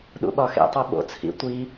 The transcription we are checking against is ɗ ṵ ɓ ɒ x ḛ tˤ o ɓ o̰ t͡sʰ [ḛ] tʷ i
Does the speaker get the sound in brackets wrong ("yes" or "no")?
yes